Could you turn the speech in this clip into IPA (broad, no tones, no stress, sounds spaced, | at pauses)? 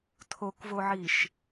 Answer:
tʰ o k v o ʕ i ʃ